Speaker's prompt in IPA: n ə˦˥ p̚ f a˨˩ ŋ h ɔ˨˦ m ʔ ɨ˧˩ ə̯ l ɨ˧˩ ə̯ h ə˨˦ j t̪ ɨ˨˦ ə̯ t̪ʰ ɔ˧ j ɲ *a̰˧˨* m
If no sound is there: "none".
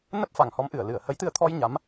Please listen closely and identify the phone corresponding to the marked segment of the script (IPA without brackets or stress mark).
a˨˦